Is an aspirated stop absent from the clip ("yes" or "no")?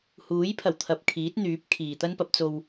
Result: no